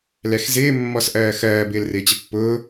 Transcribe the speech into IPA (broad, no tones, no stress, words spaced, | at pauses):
lɛxzɪː mːɔsʔɜːxɜː bɪːlrɪːt͡ɕəpːʊː